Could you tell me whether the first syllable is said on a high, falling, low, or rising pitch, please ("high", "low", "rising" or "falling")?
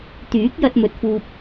rising